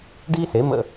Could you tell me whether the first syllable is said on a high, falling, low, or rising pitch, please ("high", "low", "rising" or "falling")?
high